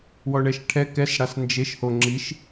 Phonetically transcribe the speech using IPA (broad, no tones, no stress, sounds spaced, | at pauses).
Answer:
w ɔ ɳ ɛ ʃ ʈʰ ɛ k ɛ s ɽ a s n d͡ʒ e ʃ h o ŋ͡ǁ i ʃ